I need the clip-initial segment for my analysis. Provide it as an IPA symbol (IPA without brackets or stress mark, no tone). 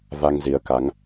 v